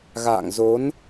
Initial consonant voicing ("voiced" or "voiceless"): voiced